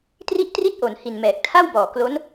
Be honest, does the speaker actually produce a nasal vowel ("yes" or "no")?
no